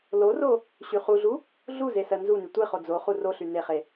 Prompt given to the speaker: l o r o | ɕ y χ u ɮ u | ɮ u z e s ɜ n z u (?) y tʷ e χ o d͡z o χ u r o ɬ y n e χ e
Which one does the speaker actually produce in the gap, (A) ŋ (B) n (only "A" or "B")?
B